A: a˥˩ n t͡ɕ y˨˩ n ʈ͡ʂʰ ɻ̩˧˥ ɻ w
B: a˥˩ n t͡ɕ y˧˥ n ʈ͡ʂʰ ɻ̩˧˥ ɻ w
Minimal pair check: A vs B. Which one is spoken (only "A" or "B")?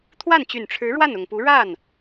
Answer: A